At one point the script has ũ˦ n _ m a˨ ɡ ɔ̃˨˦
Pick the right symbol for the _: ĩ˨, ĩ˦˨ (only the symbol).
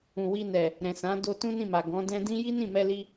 ĩ˦˨